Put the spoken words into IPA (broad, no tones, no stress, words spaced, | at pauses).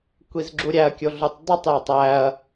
kʷizɡ͡ǁuɾʲæɐ̯ kʲoɮutˤdˤutˤ jetˤæɐ̯